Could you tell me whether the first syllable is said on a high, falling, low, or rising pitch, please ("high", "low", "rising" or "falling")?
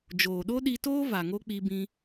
low